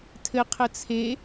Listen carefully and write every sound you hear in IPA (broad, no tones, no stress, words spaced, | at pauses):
tʰɘ qʰət͡sʰe